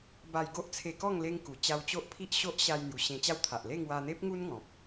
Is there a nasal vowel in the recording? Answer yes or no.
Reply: yes